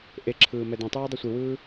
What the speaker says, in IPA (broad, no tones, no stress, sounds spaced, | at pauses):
ʔ e ǁʰ ɯː m ɛ d ẽ tˤ uː dˤ i sʷ i w ɯː